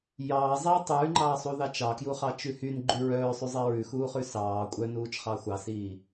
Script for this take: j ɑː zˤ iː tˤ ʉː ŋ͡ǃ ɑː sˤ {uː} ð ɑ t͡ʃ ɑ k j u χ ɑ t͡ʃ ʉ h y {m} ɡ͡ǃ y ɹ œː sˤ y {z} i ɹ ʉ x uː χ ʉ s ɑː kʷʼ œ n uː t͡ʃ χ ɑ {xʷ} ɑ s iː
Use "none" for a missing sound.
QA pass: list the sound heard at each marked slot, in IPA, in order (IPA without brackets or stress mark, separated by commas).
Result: u, n, zˤ, xʷ